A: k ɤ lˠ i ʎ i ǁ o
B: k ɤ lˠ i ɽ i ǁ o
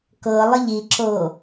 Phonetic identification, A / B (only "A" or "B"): A